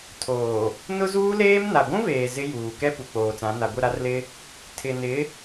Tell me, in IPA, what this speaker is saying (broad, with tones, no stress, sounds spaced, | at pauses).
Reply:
tʰ oː˨ | n ʊ˦ z uː˦ l eː˦ m n a˨ ɡʷ ũ˦ v eː˨ z ɪ˦ j uː˨ k ɛ˦ p u˨ k͡p oː˨ t͡s ã˨˦ n a˨ ɡʷ ɪ˦˨ ɾ a˦ r l ɪ˦ | tʰ ɪ˨ n ɪ˨˦